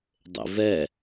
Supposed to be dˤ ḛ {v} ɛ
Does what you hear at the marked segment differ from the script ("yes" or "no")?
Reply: no